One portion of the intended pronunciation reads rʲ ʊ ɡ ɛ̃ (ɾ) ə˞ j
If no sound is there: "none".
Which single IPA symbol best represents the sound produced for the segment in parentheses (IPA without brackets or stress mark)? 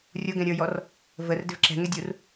ɾʲ